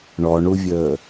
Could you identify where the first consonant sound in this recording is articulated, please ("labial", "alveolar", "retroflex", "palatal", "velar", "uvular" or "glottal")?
retroflex